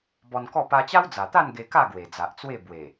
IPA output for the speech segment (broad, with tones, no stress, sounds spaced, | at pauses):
b ɔ˧ n k ɔ˥˧ p a˧ t͡ɕ a˦ w d͡z a˨˩ t̪ a˥˧ n ɡ e˧ k a˥˧ ɡ w e˨˩ d͡z a˨ ʔ t͡s w e˥˧ b w e˨˩